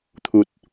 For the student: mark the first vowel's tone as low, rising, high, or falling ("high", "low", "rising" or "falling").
low